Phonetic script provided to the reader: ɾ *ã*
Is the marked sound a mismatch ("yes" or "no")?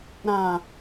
no